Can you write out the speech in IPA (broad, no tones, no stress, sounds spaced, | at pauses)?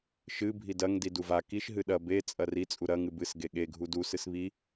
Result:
ʃ ɨ bʱ i d ɐ ŋ d i d u v a k i ʃ ɦ ɨ ɗ ɐ b e t͡sʼ ɐ r i t͡sʼ u ɾ ɐ ŋ ɨ b ɨ s ɡ e ɠ e ɡʱ u d u s ɨ s β i